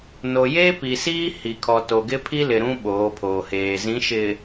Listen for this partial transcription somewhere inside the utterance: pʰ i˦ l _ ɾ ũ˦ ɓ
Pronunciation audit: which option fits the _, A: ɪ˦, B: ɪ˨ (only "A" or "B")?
B